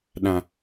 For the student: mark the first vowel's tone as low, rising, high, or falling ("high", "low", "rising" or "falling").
low